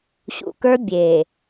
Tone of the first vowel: low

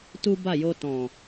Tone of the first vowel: high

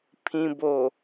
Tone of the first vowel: low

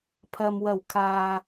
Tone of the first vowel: low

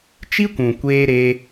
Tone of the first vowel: high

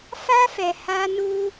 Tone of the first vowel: high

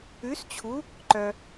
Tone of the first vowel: rising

